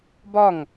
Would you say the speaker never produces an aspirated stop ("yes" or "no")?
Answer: yes